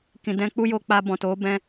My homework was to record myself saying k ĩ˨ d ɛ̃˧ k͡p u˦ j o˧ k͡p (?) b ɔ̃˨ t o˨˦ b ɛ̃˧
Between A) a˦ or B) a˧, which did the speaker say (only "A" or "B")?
B